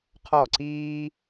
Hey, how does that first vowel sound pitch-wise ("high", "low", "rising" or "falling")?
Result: falling